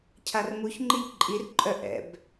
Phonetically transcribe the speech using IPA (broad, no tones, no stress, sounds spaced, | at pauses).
cʰ a r m u ç ŋ͡ǃ i ʎ ǃʼ i r ǃʼ œ ʔ ɛ̰ b